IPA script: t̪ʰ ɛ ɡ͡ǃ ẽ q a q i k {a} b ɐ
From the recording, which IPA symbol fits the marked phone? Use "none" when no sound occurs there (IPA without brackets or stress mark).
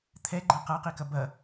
ɐ